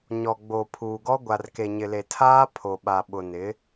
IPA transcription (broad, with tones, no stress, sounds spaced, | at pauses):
ɲ ɔ˨ ɡ͡b o˨ pʰ uː˨ ɡ ɔ˦ ɡʷ a˨ r k e˨ ɲ ɪ˨ l e˨ tʰ aː˦ pʰ o˨ ɓ a˨ ɓ ʊ˨ n ɪ˨˦